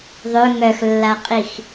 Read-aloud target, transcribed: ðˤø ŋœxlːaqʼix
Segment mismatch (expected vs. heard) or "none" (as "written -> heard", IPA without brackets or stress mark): none